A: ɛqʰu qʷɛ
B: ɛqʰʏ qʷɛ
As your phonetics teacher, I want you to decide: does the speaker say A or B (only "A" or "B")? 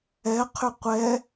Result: B